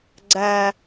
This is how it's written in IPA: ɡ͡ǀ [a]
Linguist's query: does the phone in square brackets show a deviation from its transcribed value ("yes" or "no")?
no